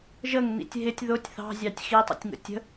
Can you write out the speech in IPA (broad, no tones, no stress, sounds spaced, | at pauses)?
ʒ ə ŋ n ḭ tʲ ɦ ɪ tʲ ð ʊ tʲ θ ɑ̤ zʲ ɑ tʲ x i tˤ ə̰ tʲ ŋ ə̰ tʲ ə̤